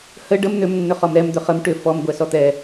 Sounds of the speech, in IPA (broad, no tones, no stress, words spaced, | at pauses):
hə ɖəm n̪ʏmnːʏ χɔmɾɛm d̪ʏχəm ʈʏ fɔm ɡʷɛsɔt̪ɛ